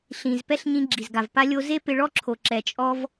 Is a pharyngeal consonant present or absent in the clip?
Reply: absent